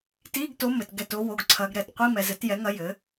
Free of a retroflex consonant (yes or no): yes